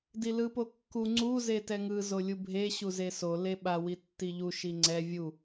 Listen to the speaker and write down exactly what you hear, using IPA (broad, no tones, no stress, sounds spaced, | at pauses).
d i l ɯ p o kː u ŋ͡ǀ u z e t ɛ ŋ ɯ z o lʲ u bʱ e ɕ u z e s o l e ɓ a w i tː i ʎ u ʃ i ŋ͡ǀ ɛ vʲ u